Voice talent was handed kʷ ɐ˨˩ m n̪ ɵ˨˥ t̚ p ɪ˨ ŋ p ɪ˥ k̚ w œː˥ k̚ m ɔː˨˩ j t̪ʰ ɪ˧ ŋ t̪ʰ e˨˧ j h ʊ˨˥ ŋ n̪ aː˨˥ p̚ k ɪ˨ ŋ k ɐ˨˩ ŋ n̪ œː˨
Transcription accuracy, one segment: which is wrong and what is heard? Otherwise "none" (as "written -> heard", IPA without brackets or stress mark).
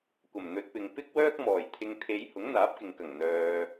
none